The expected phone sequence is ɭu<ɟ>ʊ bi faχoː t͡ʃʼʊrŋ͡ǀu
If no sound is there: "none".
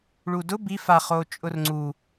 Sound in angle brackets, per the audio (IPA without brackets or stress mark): d